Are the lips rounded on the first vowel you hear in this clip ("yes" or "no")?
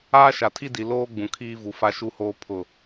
no